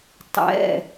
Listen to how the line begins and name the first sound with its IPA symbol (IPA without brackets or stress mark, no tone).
tˤ